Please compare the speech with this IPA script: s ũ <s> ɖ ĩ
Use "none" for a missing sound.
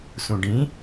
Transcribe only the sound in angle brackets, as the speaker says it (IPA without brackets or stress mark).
none